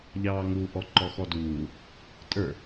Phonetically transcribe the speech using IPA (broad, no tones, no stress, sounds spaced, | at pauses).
ʎ ɑː ŋ u ʔ ɔ ǃ ɔ x ɔ d uː | tʼ ə˞